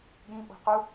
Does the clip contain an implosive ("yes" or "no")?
yes